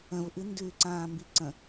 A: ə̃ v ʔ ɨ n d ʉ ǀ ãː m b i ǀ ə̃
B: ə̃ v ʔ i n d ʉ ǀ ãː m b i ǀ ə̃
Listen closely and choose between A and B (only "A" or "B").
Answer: A